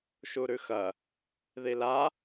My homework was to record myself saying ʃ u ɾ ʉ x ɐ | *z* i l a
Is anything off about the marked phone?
yes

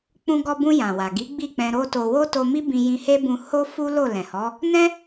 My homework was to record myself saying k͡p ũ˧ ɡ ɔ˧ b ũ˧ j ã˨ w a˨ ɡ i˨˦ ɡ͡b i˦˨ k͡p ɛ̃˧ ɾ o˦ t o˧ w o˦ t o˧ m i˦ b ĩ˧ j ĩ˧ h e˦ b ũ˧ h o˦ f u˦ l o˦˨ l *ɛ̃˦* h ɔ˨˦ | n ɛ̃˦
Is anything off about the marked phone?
yes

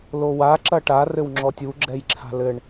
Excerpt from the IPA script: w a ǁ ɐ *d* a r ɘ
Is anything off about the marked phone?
yes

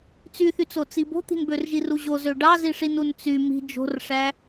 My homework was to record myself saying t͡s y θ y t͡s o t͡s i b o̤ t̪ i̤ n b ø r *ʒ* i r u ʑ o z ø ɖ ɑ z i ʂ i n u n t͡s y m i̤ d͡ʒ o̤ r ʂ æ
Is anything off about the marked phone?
no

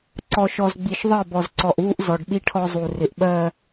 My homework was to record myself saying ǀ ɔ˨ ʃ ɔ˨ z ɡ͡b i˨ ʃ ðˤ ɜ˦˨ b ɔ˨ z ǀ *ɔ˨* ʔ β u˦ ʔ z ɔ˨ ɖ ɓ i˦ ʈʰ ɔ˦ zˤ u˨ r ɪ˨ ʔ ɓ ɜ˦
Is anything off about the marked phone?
no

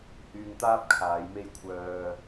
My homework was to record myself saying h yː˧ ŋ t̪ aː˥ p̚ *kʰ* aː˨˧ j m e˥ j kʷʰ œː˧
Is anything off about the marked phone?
no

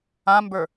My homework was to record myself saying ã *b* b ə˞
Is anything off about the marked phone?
yes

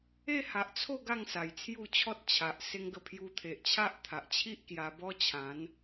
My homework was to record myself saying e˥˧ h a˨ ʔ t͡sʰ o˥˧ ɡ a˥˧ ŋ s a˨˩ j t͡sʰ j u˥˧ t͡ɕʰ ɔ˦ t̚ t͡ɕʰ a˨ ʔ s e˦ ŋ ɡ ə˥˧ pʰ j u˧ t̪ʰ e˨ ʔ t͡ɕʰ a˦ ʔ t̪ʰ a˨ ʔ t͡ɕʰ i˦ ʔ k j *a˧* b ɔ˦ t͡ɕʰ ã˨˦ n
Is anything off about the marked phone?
no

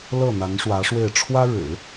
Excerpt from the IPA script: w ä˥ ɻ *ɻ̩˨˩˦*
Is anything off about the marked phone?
no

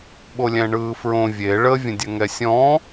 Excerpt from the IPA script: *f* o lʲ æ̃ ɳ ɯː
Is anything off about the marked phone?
yes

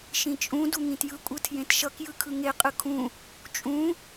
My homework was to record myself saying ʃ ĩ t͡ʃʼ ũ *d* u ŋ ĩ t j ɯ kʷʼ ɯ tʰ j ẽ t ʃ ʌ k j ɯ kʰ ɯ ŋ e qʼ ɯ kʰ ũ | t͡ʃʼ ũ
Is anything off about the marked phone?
no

